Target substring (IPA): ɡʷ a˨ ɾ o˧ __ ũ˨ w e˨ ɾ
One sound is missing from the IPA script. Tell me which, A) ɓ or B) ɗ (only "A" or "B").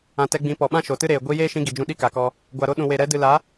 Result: B